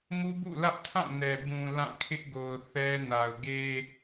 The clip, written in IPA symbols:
m u˦ b ṵ˦˨ l ä˦ ʔ tʰ ã˦˨ n ɛ˨ b ũ˨ l ã˦˨ kʰ ɪ˦ ʔ ɡ o˨ ʊ̯ θ ɛ˦ n a˨ ʊ̯ ɡ e˦

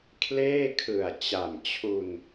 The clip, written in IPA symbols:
kʰ l eː˥˩ kʰ ɯ˨˩ a̯ t͡ɕ a˨˩ m t͡ɕʰ u˧ n

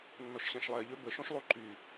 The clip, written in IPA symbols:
nː ɔ ʃ ɕ ɛ̃ ʃ lˠ ɛ ʎ ø b ə ʃ õ ʃ lˠ u ǃ y

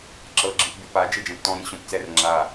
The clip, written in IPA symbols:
ǁ ɤ ɡ͡ǁ ɯ p bʲ o p a d͡ʒ e d͡ʒ ɛ̃ p t ɔ̃ ɾ ĩ ɕ õ p t͡s ɛ r ŋ͡ǁ a

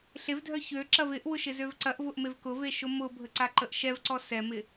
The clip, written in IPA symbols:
ɬ e v dʱ œ ç ø ǁ ɐ v ɪ ʔ w ʊ ʃ ɪ z ø v ǀ ɐ ʔ v ʊ ʔ m e v k ʊ v e ʃ ʊ m ʊ bʱ ə ǀ a ǃ ə ʔ ʃ ɛ v ǀ ɔ s ɛ m ɪ

